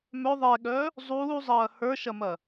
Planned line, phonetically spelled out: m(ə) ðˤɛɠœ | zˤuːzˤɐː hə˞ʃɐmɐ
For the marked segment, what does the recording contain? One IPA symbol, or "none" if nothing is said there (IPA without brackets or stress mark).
œ